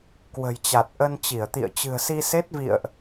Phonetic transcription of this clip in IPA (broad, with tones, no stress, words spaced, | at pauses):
kwə̤˨˩jt͡ɕa˨˩t̚ ʔə˧nt͡ɕi˧˩ə̯t̪ḭ˧˨ə̯ t͡ɕɨ̤˨˩ə̯si˧se˦˥t̚vḭ˧˨ə̯ʔ